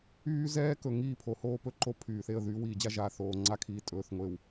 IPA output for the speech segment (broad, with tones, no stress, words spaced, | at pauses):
yː˦ zɛː˦kɵ˨ ŋiː˦˨pʰo˨hoː˦ pɵ˦ǃo˦ pʰyː˨θe˦˨ə̯ ðyː˦wiː˨d͡ʑa˦ ʒaː˨θoː˨ŋ͡ǀa˦˨kʰiː˨ tʼɵː˨θ ŋʷe˨w